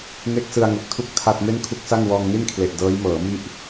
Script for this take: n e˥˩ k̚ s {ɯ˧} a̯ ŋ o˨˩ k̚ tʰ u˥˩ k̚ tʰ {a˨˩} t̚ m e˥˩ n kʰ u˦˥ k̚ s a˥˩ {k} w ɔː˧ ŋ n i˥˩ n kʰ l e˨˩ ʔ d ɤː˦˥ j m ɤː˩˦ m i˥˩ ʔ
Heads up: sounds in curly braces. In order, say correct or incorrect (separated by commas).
correct, incorrect, incorrect